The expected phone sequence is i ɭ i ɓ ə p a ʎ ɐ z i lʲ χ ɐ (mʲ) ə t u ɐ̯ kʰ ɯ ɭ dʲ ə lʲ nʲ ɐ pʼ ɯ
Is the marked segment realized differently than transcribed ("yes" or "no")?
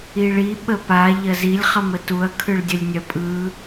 yes